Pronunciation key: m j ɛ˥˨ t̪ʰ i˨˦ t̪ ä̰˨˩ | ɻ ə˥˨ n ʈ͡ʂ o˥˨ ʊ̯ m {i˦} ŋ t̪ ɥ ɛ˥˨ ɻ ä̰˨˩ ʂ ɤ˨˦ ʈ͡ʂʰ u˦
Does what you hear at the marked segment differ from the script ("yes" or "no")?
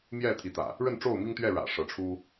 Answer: no